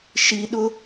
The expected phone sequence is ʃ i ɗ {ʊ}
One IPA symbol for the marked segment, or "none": ʊ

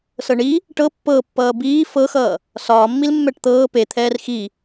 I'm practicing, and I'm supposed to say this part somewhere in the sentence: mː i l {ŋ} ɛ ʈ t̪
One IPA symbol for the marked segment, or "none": mː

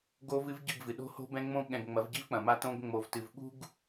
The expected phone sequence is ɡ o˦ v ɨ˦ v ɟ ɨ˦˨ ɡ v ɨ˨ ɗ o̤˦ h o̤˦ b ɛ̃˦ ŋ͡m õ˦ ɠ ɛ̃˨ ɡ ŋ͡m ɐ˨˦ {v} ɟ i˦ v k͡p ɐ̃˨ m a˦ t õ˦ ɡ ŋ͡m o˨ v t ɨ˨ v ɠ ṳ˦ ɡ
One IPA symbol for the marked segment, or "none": v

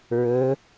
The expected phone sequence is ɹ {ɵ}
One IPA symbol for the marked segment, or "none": ɵ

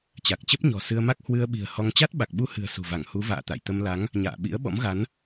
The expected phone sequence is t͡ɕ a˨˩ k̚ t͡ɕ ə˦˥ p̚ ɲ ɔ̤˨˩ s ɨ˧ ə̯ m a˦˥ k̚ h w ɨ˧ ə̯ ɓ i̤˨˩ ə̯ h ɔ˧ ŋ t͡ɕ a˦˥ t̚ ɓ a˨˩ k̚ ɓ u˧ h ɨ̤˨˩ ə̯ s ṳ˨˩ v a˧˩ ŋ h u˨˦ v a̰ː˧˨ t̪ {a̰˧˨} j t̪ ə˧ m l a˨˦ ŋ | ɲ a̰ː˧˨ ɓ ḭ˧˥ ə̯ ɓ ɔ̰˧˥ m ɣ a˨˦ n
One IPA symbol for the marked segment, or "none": a̰˧˨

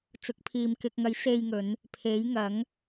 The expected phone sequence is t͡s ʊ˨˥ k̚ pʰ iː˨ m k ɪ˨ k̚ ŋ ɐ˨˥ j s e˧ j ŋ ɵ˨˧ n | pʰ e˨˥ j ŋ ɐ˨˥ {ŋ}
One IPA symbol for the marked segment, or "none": ŋ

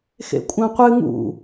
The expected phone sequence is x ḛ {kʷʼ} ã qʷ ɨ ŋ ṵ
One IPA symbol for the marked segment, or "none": kʷʼ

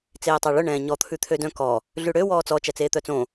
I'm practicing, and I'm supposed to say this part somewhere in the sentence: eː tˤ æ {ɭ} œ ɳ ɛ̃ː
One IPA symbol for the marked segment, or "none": ɭ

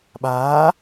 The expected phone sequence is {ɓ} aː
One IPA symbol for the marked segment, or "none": ɓ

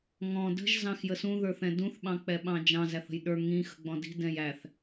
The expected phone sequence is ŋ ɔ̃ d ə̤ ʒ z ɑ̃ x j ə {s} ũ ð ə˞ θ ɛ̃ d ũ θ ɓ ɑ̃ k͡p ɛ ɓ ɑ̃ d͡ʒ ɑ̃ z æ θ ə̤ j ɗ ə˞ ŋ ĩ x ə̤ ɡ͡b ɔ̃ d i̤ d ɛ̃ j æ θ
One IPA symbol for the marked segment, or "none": s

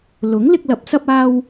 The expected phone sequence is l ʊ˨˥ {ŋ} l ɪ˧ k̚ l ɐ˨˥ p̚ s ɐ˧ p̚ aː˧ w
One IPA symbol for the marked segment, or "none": ŋ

